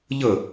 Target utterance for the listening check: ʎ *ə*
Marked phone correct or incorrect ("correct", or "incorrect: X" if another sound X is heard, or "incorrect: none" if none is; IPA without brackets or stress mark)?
correct